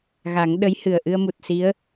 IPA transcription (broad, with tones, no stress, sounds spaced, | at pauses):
ɣ a˨˩˦ ŋ ɗ ə˧˥ j h ɨ˨˩ ə̯ ʔ ɨ˧ ə̯ m u˨˩ t̚ s i˧˥ ə̯